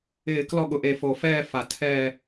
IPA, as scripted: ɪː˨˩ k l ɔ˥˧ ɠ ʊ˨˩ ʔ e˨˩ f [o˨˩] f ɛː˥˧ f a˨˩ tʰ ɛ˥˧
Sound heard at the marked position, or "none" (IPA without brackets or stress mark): o˨˩